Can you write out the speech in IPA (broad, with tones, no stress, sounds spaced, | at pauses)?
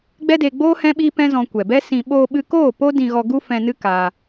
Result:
ɡ͡b ɛ˦ d e˧ ɡ͡b oː˦ h ɛ̃˦ ɓ iː˦ p ɛ̃˦ z ɔ̃˧ kʷ ɛ˨ b ɛ˦ s ĩ˧ ɓ oː˧ ɓ ɨ˧ k oː˦˨ p o˦ d ĩ˧ ɣ ɔ˧ ɡ u˦ f ɛ̃˧ n ɨ˦ k aː˧